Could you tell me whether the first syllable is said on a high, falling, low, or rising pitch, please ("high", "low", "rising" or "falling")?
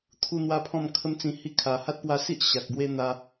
high